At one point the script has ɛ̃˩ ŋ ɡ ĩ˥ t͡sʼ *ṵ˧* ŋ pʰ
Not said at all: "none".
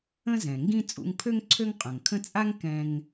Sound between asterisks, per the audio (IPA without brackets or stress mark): ṵ˧